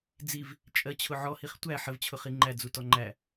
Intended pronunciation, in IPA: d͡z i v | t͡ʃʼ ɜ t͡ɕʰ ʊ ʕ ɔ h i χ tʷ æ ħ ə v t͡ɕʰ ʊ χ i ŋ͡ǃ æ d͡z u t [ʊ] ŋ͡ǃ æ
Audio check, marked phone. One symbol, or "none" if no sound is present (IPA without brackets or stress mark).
ɔ